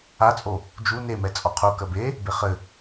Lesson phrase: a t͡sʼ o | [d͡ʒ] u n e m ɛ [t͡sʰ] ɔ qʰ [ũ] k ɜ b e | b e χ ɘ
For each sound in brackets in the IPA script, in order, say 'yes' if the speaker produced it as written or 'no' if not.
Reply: yes, no, no

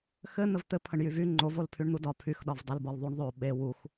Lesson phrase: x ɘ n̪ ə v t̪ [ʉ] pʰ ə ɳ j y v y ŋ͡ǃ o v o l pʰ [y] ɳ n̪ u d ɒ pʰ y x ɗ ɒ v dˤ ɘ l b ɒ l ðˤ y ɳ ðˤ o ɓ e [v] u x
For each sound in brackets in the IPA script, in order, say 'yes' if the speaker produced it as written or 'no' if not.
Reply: no, yes, no

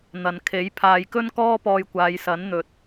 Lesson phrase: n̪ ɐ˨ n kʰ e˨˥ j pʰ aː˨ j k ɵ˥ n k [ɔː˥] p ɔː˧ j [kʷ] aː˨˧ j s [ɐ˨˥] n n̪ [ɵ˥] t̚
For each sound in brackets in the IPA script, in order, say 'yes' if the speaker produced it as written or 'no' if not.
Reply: yes, yes, yes, no

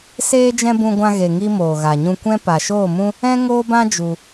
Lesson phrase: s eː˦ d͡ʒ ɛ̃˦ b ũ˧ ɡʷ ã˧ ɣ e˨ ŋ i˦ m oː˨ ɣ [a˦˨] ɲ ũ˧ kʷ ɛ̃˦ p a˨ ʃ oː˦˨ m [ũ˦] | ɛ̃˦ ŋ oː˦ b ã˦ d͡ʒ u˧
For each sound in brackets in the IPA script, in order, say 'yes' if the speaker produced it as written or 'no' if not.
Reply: no, yes

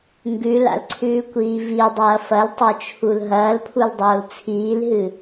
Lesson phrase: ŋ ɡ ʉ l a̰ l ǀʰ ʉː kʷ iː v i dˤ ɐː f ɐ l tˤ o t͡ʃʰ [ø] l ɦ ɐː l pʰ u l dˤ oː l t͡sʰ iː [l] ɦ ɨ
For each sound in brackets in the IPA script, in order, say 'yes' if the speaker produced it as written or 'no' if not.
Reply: no, yes

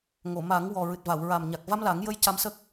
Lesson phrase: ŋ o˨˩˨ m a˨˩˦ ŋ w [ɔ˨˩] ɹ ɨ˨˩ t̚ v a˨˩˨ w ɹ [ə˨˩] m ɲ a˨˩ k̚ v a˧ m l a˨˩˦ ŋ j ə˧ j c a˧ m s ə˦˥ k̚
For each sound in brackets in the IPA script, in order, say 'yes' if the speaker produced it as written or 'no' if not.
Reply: yes, no

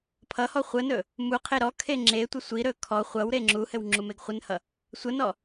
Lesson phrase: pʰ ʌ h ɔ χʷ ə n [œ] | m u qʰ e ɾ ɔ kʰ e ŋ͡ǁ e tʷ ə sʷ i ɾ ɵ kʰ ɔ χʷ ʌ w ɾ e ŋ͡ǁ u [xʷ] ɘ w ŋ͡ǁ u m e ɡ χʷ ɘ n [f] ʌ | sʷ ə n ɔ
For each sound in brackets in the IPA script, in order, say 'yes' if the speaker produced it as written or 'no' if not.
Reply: no, no, no

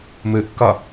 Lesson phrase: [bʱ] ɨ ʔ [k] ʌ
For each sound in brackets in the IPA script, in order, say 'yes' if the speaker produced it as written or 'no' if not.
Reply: no, yes

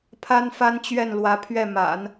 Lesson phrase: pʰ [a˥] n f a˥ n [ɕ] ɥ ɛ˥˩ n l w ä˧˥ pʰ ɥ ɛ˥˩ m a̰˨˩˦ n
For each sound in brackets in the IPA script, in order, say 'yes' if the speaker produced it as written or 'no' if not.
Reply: yes, no

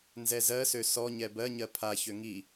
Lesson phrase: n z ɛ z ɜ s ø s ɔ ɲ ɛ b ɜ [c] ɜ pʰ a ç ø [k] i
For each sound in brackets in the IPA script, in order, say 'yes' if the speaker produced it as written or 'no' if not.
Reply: no, no

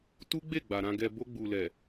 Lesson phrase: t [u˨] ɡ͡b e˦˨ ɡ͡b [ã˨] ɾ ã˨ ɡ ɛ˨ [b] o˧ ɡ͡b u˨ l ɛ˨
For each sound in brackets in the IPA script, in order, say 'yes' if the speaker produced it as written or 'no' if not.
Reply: no, no, yes

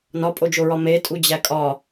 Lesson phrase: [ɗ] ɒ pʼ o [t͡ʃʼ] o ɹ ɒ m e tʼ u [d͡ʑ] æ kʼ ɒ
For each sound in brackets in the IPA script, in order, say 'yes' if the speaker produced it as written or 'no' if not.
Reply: no, no, yes

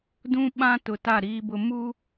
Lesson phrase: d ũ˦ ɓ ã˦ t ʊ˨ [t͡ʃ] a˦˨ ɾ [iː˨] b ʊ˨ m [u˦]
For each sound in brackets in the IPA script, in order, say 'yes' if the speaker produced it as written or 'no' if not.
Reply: no, yes, yes

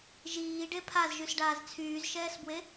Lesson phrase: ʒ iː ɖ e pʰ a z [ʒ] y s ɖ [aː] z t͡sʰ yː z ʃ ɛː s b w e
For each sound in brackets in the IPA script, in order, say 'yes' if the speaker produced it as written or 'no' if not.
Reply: yes, yes

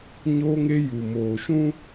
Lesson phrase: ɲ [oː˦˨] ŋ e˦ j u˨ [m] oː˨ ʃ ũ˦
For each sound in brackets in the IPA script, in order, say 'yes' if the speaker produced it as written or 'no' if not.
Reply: no, yes

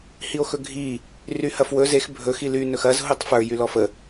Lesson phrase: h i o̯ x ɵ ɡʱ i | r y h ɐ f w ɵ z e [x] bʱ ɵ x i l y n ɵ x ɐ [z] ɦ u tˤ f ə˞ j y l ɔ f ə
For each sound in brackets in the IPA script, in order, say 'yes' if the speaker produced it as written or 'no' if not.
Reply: yes, yes

